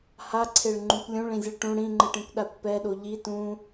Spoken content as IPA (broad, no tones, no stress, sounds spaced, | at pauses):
h a ǀʰ e ɭ ŋ͡ǃ ũ kʷ lʲ ũ ɭ ĩ zʲ ɯ ɭ ʈ ũ ɽ ĩ ŋ͡ǃ ɯ ʈ ĩ kʷ ɗ a kʷ p ɛ ɗ o ʎ i t ũ